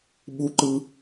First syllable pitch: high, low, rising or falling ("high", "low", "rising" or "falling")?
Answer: rising